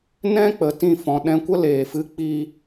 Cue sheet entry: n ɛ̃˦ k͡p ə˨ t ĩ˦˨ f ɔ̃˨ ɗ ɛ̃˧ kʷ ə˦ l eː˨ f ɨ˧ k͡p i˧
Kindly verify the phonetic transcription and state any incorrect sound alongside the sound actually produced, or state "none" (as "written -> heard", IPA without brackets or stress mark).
none